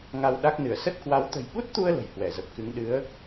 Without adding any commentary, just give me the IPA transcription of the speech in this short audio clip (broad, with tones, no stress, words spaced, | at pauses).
ŋa˧wɗa˦˥k̚nɨ˧˩ə̯ sə˦˥t̚kwa˨˦w t̪ə̤˨˩jɓu˦˥t̚t̪u˧ə̯ lə̤˨˩jhwɛ˧˩zə˨˩p̚kɨ˨˦ŋ ɗɨ˨˦ə̯